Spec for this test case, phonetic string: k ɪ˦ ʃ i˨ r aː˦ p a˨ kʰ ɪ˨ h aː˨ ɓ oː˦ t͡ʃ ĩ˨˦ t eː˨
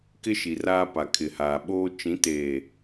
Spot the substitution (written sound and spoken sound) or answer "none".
none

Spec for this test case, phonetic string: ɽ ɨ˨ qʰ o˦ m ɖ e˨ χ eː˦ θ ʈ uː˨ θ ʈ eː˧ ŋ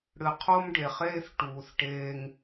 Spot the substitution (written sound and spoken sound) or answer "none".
none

